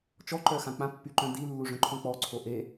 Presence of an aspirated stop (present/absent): present